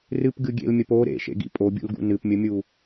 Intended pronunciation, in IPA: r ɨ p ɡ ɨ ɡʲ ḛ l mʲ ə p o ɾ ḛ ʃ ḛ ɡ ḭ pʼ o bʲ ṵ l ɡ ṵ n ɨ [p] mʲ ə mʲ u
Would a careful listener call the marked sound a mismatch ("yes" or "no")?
no